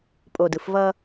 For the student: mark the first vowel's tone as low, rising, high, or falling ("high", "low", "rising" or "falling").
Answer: low